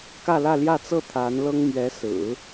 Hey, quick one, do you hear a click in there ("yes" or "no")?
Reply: no